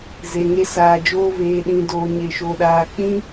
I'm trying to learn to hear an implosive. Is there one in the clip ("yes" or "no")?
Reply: yes